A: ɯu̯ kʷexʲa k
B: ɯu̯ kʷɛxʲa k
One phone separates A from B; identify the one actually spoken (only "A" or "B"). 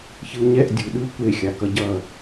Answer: A